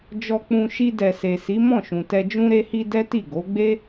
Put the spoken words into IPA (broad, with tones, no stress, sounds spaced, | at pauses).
d͡ʒ ɔ˧ k͡p ũ˧ ʃ i˧ d ɛ˨ s e˨ s i˨˦ m ɔ̃˦˨ ʃ ũ˨ t ɛ˧ d͡ʒ ũ˧ ɾ e˧ h i˧ d ɛ˦ t i˦˨ ɡ o˨˦ ɡ͡b e˦